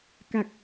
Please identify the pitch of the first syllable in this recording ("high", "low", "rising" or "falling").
low